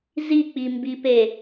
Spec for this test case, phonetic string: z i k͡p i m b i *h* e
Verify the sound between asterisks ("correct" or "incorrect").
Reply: incorrect